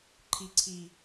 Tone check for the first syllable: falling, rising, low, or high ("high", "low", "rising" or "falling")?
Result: low